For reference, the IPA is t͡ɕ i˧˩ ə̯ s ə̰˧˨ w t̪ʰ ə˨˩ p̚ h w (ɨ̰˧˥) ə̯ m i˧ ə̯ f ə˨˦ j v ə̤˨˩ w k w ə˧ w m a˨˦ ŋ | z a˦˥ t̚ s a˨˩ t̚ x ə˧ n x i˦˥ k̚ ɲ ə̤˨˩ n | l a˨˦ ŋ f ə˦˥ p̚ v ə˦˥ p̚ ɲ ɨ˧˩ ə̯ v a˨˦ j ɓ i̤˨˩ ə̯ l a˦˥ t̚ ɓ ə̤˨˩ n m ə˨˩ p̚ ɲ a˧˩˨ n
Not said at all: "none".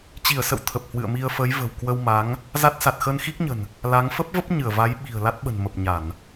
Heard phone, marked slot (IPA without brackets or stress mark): ɨ̰˧˨